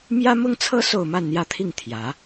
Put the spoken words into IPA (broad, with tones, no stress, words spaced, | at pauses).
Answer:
mjä˥mʊ˥ŋt͡sʰɤ˥ so˥˧ʊ̯ma˥˧nn̪jä˥˧t̪ʰi˥˩ŋ t̪ʰjä˧˥